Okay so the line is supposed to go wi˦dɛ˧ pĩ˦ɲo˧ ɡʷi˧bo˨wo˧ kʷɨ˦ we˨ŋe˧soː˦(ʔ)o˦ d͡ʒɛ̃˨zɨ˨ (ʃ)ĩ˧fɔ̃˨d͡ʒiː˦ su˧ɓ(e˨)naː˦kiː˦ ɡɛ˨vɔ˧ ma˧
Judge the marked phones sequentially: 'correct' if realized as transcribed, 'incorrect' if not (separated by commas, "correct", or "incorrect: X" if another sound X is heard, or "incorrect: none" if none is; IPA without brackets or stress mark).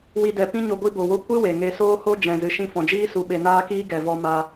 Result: incorrect: h, correct, incorrect: e˧